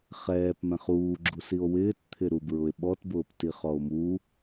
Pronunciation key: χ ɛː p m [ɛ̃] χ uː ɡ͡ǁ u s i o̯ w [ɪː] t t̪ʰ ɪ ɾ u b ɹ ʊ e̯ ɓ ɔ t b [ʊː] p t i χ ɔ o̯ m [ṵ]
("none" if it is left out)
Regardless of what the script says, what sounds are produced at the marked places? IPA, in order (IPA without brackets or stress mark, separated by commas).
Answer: ɛ̃, ɪː, ʊː, u